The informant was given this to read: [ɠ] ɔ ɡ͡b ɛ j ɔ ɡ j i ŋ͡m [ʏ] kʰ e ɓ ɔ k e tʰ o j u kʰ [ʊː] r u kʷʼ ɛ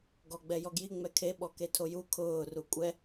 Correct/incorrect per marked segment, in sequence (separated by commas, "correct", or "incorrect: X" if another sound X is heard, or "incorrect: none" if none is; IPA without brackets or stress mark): incorrect: ɡ, incorrect: ɛ, correct